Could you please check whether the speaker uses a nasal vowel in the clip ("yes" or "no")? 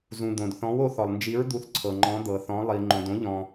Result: yes